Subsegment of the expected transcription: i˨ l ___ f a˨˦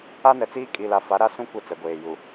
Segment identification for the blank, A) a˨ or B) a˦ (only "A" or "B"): A